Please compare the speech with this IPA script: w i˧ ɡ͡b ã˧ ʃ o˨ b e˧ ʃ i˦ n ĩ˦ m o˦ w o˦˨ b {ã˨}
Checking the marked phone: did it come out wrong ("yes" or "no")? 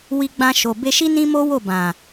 no